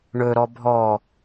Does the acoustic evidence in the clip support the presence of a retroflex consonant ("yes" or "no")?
yes